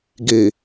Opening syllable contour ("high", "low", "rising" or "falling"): low